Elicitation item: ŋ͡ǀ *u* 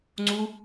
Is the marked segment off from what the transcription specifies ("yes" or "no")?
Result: no